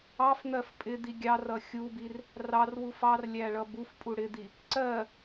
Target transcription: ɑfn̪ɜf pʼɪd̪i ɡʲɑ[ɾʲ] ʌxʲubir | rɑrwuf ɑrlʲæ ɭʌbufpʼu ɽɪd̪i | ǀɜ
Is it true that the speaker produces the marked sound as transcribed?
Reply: no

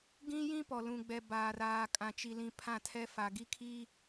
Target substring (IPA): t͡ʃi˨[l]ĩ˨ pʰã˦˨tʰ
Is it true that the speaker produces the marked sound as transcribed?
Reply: yes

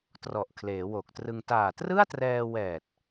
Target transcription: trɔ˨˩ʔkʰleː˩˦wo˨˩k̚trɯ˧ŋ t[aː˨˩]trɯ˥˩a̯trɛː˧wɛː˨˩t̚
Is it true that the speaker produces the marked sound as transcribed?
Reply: yes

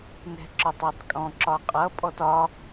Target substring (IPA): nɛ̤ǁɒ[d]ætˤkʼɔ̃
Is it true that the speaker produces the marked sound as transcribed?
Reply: no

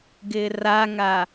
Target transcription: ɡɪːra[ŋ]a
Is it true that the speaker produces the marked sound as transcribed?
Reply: yes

